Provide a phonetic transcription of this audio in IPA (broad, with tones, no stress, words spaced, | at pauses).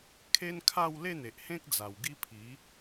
kʰe˦nkʰa˥˧w le˥˧n̪e˨ʔhẽ˦k̚d͡za˨˩w ɡi˦pʰi˨˦